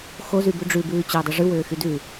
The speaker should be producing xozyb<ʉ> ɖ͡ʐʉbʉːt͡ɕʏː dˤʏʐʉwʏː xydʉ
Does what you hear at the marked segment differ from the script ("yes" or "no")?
no